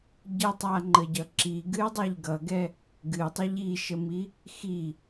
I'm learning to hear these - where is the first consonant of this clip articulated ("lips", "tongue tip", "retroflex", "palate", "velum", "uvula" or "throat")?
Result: palate